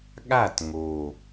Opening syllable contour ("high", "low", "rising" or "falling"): falling